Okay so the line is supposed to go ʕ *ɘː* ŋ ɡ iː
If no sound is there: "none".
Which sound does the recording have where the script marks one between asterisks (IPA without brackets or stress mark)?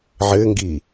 ɘː